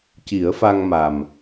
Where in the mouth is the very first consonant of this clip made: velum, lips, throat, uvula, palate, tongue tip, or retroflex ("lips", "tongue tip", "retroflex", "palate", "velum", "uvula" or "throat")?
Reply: palate